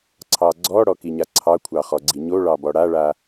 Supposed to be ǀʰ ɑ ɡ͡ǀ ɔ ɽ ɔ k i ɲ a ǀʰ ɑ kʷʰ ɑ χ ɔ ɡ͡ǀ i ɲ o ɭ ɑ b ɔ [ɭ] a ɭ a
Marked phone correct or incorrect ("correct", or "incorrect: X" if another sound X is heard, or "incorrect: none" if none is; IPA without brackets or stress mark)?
incorrect: ɽ